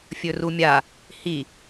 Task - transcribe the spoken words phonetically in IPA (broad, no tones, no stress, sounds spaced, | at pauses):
fʲ ɵ r u mʲ a | h i